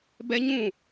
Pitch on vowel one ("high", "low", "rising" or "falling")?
high